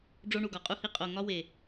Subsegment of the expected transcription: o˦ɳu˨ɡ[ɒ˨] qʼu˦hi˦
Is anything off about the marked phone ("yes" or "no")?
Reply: no